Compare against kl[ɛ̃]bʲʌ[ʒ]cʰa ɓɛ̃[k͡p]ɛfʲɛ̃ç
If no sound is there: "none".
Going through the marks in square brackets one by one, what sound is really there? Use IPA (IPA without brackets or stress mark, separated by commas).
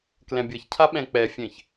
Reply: ɛ̃, ç, k͡p